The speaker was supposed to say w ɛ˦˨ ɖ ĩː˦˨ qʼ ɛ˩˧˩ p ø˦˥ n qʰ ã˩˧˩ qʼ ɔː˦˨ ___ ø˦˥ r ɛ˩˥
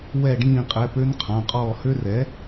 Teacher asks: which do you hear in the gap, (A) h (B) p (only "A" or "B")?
A